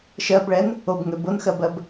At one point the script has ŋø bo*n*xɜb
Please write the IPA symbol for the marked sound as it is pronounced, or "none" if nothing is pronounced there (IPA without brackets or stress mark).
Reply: n